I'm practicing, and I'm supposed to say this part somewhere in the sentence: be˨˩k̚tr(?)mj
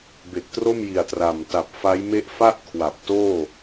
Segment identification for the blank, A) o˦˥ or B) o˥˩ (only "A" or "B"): B